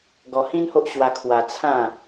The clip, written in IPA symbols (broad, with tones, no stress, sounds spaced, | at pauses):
ɡ ɔ˧ h ĩ˦ n h o˦ ʔ ɕ w a˧ kʰ w a˧ t͡sʰ ã˥˧